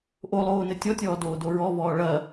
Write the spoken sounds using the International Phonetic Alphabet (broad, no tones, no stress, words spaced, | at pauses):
ʔolˠoːnɘ tʲɔtʲɔːdoːdo ɹɔvɔː ɭɐ